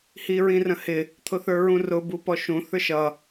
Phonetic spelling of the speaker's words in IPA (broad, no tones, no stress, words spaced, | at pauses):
hiɹĩrə̃hɪ | t̪ʰʊθə˞ɹũrʊ bupɔʃũ θə˞ʃʌ